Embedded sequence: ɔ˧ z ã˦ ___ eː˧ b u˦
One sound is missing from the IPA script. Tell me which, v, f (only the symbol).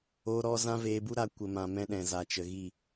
v